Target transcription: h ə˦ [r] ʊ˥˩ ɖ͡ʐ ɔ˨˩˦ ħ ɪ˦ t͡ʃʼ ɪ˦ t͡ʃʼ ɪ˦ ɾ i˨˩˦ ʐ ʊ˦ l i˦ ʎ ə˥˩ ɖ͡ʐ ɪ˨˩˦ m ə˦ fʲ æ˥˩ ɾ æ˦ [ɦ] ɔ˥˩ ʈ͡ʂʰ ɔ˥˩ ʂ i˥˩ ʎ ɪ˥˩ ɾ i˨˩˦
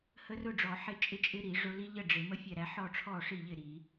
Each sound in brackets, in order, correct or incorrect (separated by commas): correct, incorrect